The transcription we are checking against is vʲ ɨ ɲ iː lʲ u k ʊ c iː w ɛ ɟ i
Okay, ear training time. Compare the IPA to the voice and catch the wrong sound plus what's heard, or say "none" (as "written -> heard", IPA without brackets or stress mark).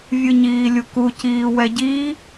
ʊ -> u